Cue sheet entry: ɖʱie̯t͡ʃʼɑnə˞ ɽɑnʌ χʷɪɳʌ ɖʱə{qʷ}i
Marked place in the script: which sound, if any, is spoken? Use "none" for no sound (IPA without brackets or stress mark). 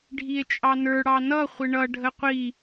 qʷ